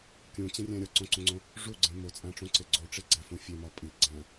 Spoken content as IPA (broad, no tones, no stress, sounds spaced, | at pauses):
kʲ ũ t͡ɕ ẽ rʲ æ̃ ɾʲ ɒ ǀ õ ǀ ũ ŋ͡ǀ õ | ʐ u ɡ͡ǀ ẽ m o t͡sʼ æ̃ ʈ͡ʂ ũ ǀ e ɡ͡ǀ o ʈ͡ʂ e ɡ͡ǀ æ f ũ fʲ e m ɒ pʼ i ɡ͡ǀ æ̃